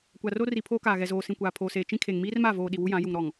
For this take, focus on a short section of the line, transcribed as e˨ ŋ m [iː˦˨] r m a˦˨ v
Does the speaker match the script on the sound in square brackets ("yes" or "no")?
no